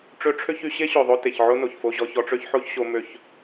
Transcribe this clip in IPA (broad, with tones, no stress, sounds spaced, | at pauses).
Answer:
ʈ͡ʂ ø˧ ʈ͡ʂʰ ø˦ ç y˧ ɕ e˦ ɕ ø˨ ðˤ o˧ t e˨ ç ʕ o˦ n o˨ ç f o˧ ʑ ɔ˧ ç ɔ˧ ʈ͡ʂ ø˦ ç ħ o˦ ç ɕ o˧ m ø˧ ç